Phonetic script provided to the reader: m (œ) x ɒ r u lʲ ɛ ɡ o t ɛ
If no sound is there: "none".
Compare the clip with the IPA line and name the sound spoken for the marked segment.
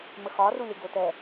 ə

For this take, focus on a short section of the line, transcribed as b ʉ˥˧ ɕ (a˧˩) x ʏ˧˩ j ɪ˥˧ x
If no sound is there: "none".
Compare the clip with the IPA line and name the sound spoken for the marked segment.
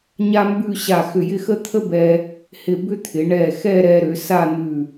a˧˩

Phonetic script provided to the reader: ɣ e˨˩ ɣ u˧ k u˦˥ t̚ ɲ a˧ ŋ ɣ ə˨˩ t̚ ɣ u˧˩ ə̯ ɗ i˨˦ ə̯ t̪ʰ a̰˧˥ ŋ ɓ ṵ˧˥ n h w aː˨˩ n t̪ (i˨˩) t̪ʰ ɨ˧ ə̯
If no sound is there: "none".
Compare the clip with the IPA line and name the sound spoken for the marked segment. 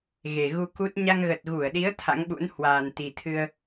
i˨˩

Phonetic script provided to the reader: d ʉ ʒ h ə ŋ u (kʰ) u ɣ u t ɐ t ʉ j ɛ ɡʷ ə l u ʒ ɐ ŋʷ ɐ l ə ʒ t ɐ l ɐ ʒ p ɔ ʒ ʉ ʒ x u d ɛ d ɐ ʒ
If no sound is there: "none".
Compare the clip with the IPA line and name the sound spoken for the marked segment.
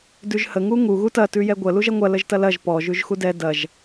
ŋ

